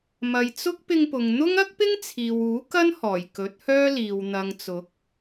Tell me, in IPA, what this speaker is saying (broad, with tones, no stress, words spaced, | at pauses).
mɐ˨jt͡sʊ˥k̚ pɪ˧ŋpʊ˨ŋ n̪ʊ˥ŋ ɐ˥k̚pɪ˥ŋ t͡sʰiː˨wuː˨˥kɐ˥nhɔː˨˩j kɵ˨˥t̚hœː˥liː˨w n̪ɐ˨ŋt͡sʊ˨˥k̚